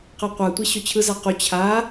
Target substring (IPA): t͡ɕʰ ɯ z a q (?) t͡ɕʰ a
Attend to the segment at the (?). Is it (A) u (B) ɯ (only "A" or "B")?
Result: A